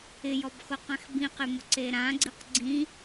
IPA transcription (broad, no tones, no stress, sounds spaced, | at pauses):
ɪ j ɔ b x ʊ q ã x b ĩ q ɪ m ʊ ǀ e ɾ ã ɡ͡ǀ i q ɡ͡ǀ ĩ